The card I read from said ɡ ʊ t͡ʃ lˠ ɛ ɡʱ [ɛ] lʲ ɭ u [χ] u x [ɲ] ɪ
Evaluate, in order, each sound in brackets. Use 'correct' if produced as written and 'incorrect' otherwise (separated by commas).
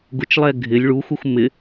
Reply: incorrect, incorrect, incorrect